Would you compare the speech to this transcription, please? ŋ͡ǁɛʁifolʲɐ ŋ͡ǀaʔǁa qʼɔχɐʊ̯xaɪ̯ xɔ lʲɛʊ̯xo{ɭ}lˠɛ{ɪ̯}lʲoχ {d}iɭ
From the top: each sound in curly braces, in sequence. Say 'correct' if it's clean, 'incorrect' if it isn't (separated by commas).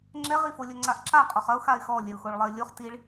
correct, correct, incorrect